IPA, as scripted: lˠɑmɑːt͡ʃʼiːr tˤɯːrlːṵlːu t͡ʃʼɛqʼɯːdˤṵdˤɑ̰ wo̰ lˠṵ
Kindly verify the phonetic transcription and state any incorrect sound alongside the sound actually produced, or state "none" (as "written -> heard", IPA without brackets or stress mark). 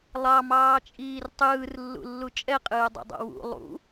o̰ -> ṵ